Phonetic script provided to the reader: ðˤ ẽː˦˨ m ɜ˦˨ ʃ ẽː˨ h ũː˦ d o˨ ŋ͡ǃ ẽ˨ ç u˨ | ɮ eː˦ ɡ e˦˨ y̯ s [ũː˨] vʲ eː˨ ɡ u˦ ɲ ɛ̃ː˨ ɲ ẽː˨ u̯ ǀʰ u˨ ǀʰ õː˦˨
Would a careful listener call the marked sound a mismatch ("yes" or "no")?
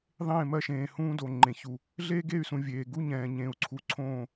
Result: yes